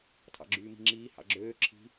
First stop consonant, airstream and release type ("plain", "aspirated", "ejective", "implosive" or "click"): aspirated